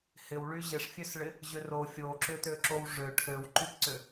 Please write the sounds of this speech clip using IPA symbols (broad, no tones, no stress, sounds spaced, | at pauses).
h ɪ w ɭ y ʑ ɪ ʂ fʲ ø s ɭ ɪ | ʑ ʏ r o fʲ o ǁ ʏ t ø ǁ o w ʐ ø ʈʰ ø w ǃ y p ǀ ʏ